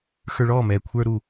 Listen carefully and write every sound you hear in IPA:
xə˞˧ɭɔː˦˨mɛː˨ kʷʰə˞˧ɾu˨

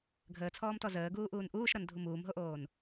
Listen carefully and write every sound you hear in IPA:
ɡʱəːt͡sʰɔːmtɔ zəːɡuːʔuːn ʔuːʃɾʌndʱu muːmɦoʔoːn

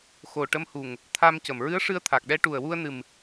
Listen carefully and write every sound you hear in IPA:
xo˨˩ ʈə˧mhu˨˩ŋ | t̪ʰa˧mcə˨˩mɹɨ˧˥ə̯ʂɨ˧ə̯ t̪ʰa˨˩k̚ɗɛ˧˥ ʈu˨˩ə̯wu˧ə̯nɨ˨˩m

